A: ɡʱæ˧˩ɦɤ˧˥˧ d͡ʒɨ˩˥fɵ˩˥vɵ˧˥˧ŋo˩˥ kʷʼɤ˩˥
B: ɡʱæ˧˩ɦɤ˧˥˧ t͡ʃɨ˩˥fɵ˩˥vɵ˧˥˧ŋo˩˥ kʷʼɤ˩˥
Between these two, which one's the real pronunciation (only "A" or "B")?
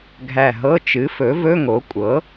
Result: B